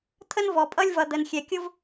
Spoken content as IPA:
t̪ʰ ə˦ n v ɔ˨ pʼ ʌ˦ lʲ v ʌ˨ d̪ ə˨ n xʲ ɛ˨ kʲ ʊ˦ v

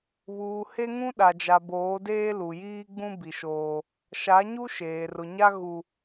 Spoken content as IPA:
β uː˨ h e˦ ŋ ũ˦ ɗ a˨ d͡ʒ a˨ b oː˨˦ d eː˦ l u˨ j iː˦ ɡ͡b ũ˦ b i˨ ʃ oː˦ | ʃ a˨˦ ɲ u˦ ʃ eː˨ r ʊ˨ ɲ a˦ ɣ u˦

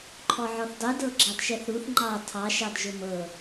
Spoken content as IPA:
ǃʰ ɔ ʕ ɔ θ dˤ u d ɤ ɡ͡ǁ ɑ d ʃ ɛ θ ɾ u θ ŋ͡ǃ ɑ tʰ ɑ ʃ ɑ d ʒ ʊ m ɤ

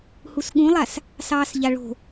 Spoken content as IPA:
h u s ɠ ũ lˠ a s | s ɑː s ʎ a ɭ o̤

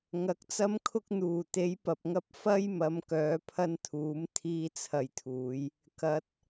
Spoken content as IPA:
ŋ ɐ˨˥ k̚ t͡s ɐ˥ m kʰ ʊ˥ k̚ n̪ uː˨˩ t̪ e˨˥ j p ɐ˨ p̚ ŋ ɐ˥ p̚ f ɐ˥ j m ɐ˨˧ m k œː˨˧ pʰ ɐ˥ n t̪ʰ uː˨˥ m t̪ʰ iː˥ t͡sʰ ɐ˧ j t̪ʰ uː˨˧ j | k ɐ˨˥ t̚

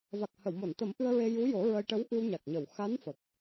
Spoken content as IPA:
v a˨˩ k̚ h ə˨˩˨ w m o˨˩˨ n t̪ ə˨˩˦ m ʔ ɨ˧ ə̯ ɹ e˧ j u˧˥ j o˨˩˦ ɹ ə˧ j ʈ ə˧˥ w ʔ ɨ˧ w ɲ a˨˩ k̚ ɲ ə˨˩˨ w x a˧˥ n f ə˨˩ k̚

